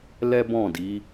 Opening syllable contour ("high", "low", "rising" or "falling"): high